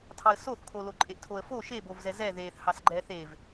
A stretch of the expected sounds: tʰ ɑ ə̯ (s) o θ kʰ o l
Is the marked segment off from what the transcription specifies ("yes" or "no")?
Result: no